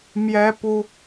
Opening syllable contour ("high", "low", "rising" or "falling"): high